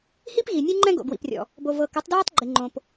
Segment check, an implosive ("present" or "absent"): absent